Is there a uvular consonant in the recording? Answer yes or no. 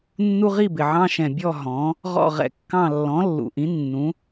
yes